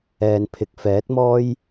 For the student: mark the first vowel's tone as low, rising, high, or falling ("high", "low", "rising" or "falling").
low